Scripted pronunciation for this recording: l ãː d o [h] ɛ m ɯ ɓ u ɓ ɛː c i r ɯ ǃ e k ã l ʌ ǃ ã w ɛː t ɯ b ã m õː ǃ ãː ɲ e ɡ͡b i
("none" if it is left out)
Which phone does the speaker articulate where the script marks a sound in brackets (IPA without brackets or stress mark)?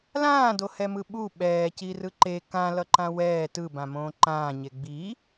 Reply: h